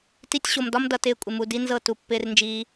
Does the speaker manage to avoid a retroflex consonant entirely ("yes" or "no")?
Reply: yes